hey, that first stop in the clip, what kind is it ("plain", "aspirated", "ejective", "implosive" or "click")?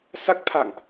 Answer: plain